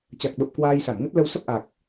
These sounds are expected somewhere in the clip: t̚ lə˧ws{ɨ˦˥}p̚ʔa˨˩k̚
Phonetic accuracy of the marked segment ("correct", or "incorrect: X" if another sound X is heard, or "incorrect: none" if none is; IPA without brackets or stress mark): incorrect: ə˦˥